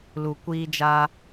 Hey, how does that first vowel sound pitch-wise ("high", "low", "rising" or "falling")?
low